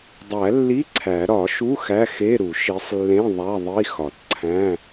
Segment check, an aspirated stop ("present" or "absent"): present